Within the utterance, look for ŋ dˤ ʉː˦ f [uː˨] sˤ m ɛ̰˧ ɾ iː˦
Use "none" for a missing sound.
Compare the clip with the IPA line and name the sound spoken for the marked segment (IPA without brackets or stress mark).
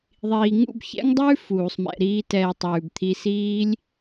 uː˨